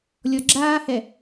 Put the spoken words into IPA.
lʲɔɡ͡ǁaːhɛ

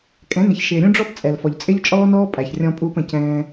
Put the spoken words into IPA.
kʼɛ̃˨˦nɪ˨çʃɪː˨ ɾʲũ˦ɖ͡ʐɔ˦p t͡sʼɛ˨lfɔ˨ʎ t͡sʼɪ˦ʎt͡ʃʼɔː˦nɔː˦ pʼæ˨çrʲɔ̃˧pʼuː˧pə̃˨ cɛ̃ː˧

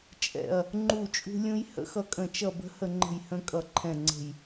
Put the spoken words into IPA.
t͡ʃʼɛ̰˧˩ɐ̯ | ŋ͡ǃu˧˩ t͡ʃʼṳ˧ lʲũ˧j hə̰˦˥xʌ˧kʼə̃˧˩ t͡ʃʌ˧˩bə̤˧hə˧˩ ŋ͡ǃə̤˧˩jhə̃˧ kʼʌ˧˩ǃʰɛ̃˧˩ŋ͡ǀə̤˧˩j

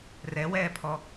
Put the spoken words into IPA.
rɛwɛːpʰɔ

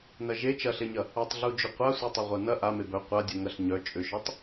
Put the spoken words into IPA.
nɐʒe t͡ʃɐɬeɲɐ | ɐtˤɮud͡ʒʏ qʷa sʷetˤɐʁʷanɐ ʔa mebœ qʷadʲœ ŋɐɬɲœ t͡ʃʼʏʃœtˤ

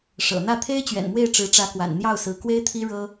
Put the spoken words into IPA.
ʂɤ̰˨˩n̪ä˥˩ t̪ʰe˥ɪ̯t͡ɕɥɛ̰˨˩nmwe˥˩ɪ̯ ʈ͡ʂɻ̩˧˥ʈ͡ʂä˧˥kwa̰˨˩n n̪jɑ˥˩ʊ̯sɹ̩˧˥kwe˥ɪ̯t̪ʰi˥ ɻɤ˥

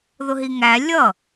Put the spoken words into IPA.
ðʊɦiŋæ lʲʌ

